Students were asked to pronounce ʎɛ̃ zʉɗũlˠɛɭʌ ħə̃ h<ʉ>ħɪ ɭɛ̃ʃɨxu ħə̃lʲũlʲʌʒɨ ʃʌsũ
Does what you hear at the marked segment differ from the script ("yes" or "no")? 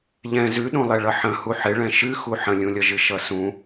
yes